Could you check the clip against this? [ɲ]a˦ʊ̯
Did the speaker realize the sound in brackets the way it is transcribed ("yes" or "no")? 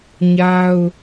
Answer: yes